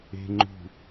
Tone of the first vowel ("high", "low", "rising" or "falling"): low